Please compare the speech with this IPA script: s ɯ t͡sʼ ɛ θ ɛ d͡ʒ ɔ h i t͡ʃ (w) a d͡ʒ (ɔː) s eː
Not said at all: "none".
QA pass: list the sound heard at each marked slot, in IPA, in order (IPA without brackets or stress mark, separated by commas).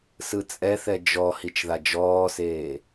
ð, ɔː